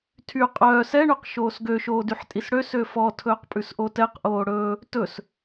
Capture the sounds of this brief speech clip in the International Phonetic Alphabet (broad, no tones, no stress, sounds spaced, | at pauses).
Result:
tʰ y qʼ œː s ɛ ɳ ʉ q ʃ oː s ɡ ø ʃ oː d y ħ tʼ i s ɽ ø s ø f ɔ tʰ ɵː q pʼ ʉ s ʔ o t ɛ q ʔ oː ɽ ɵː | t ɵ s